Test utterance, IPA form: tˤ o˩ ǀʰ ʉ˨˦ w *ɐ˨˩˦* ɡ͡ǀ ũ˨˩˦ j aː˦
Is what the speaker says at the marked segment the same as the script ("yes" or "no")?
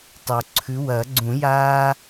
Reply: yes